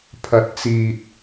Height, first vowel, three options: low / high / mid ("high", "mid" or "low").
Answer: low